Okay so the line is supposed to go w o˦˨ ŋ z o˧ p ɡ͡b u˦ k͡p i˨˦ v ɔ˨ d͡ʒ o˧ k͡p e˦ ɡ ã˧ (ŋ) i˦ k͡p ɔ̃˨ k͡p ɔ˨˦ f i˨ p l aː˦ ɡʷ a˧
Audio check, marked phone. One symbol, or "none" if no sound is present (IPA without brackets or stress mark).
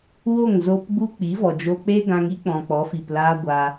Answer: ŋ